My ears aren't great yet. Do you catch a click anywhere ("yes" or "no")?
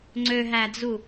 yes